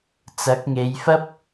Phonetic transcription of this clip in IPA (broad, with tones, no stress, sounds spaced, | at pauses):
t͡s ɐ˨˥ k̚ ŋ e˨˧ j f ɐ˥ p̚